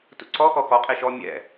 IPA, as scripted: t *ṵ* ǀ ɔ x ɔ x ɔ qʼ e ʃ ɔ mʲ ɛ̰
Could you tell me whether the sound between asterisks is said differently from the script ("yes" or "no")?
no